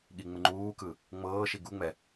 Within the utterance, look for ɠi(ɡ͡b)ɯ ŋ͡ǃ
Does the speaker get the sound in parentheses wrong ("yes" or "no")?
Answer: yes